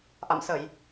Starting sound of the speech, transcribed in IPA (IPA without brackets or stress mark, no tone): ʔ